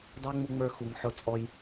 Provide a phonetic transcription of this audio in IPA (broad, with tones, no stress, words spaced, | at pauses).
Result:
dɑ˦ŋ͡mu˧ŋ͡mə˞˧xu˨ŋ ħʊ˦˨t͡sʼɔ˧j